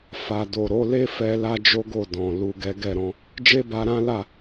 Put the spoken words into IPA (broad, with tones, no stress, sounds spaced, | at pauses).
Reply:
f a˨ d o˨ ɾ o˨˦ l e˦ f ɛ˧ l a˦ d͡ʒ o˦ ɡ o˦˨ d ɔ̃˨ l u˨ ɡ ɛ˨˦ ɡ ɛ˦˨ ɾ ɔ̃˧ | d͡ʒ e˦ b a˧ ɾ ã˦ l a˦˨